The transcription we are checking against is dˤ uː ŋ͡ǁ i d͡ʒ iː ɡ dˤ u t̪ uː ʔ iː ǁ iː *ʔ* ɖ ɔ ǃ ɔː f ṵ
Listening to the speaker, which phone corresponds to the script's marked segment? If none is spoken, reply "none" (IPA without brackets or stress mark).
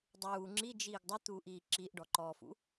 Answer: ʔ